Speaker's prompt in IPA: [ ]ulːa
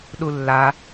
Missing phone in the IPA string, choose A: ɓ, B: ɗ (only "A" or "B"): B